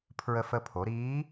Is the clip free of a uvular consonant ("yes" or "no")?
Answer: yes